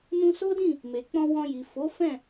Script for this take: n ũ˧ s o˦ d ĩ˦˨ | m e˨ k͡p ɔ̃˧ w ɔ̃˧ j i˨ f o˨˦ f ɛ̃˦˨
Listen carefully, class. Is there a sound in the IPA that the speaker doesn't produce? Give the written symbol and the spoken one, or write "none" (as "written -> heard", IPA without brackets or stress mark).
none